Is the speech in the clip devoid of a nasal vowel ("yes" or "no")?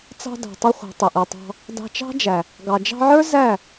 yes